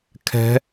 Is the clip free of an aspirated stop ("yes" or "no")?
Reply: no